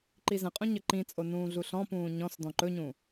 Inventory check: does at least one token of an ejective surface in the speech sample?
yes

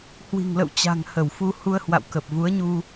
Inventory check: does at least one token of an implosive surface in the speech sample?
no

